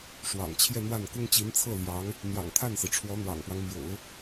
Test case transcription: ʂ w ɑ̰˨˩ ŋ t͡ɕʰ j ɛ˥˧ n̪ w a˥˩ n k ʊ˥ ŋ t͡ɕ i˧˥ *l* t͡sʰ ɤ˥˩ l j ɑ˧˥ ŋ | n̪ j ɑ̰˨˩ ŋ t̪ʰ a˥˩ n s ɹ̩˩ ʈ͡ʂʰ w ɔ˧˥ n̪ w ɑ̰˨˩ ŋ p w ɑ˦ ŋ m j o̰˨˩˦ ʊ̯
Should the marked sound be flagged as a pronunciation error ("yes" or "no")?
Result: yes